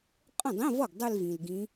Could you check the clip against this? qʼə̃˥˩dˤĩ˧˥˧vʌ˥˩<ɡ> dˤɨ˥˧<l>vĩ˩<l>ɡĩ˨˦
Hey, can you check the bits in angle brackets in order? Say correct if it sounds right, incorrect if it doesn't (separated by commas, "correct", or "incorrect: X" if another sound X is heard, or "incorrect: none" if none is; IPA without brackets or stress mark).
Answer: correct, correct, correct